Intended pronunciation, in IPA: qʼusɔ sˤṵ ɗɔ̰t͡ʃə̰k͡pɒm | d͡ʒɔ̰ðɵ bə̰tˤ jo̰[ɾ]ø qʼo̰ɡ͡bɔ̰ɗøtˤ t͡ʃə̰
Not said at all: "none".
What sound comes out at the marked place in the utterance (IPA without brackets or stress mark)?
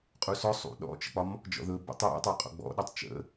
tˤ